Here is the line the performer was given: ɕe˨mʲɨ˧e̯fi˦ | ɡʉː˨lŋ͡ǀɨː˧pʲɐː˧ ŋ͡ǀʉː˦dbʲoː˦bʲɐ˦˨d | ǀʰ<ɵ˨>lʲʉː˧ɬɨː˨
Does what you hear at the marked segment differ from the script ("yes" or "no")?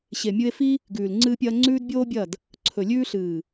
no